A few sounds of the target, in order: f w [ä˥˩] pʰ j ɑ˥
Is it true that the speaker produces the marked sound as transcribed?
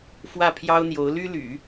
yes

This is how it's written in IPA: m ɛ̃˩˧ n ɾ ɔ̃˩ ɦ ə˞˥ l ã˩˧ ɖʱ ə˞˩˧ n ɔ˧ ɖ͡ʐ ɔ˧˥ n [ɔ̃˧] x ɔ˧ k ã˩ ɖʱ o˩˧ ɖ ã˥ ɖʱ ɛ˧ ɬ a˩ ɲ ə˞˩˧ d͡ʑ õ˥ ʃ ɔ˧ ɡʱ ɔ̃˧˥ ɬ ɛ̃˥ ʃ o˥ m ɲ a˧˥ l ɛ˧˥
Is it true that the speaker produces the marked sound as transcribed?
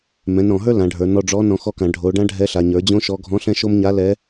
no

